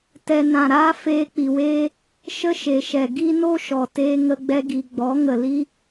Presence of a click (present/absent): absent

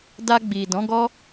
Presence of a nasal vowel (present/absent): present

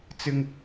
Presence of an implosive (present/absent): absent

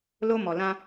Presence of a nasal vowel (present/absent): present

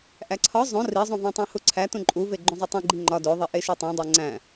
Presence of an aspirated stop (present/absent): present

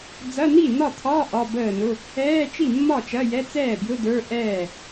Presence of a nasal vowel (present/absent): absent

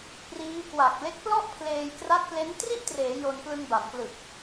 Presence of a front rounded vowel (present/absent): absent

